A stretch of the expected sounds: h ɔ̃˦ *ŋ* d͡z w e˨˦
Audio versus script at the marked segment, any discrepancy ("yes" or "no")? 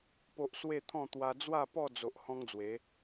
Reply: no